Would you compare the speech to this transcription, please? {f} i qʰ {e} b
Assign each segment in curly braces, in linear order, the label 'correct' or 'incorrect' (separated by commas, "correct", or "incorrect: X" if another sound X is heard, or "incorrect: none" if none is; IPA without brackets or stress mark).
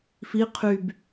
correct, incorrect: y